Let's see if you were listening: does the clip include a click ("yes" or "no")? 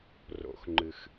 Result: yes